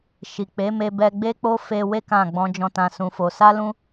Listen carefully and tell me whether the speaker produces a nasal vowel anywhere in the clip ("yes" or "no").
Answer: yes